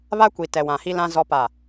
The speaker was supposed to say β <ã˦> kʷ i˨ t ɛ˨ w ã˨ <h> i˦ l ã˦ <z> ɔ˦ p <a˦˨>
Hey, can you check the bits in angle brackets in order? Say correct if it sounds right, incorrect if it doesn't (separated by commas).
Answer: incorrect, correct, correct, correct